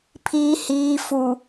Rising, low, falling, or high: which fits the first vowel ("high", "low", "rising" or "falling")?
low